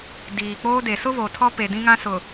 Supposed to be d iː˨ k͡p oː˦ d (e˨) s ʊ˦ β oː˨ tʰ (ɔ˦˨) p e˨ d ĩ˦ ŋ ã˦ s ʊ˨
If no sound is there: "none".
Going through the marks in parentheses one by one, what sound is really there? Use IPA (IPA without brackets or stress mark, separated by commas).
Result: e˨, ɔ˦